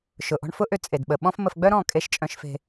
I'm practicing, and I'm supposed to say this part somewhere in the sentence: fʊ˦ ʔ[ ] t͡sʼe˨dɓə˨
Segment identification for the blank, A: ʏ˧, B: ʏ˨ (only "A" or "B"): A